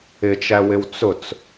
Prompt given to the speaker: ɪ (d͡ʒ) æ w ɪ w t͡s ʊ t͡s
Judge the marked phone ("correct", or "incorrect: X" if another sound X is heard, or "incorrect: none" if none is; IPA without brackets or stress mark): incorrect: t͡ʃ